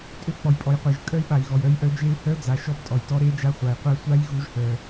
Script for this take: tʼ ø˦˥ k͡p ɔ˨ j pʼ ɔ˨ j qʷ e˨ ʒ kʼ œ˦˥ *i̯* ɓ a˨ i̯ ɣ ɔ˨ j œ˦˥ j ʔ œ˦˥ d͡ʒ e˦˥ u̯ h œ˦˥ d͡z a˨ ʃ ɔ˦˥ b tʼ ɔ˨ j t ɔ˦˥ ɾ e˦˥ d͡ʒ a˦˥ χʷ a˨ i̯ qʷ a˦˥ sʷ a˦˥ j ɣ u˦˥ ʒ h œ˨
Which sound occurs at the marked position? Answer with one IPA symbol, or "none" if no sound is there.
i̯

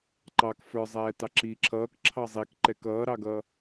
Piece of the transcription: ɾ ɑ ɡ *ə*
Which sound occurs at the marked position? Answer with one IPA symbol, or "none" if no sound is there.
ʌ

